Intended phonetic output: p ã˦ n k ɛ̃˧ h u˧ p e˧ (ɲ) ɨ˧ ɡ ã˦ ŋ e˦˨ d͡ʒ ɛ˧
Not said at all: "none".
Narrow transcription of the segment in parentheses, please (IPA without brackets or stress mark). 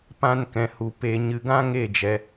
ɲ